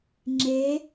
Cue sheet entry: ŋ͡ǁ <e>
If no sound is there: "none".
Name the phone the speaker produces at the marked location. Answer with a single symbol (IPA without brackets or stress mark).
e